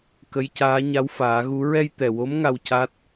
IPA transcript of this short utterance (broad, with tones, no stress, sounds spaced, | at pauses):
k ə˧˥ j c aː˧˥ ɲ a˧˥ w f aː˨˩˦ ɣ u˧˥ ɹ ɛ˧ j t̪ ɛ˨˩ w o˧˥ m ŋ a˧ w c a˦˥ t̚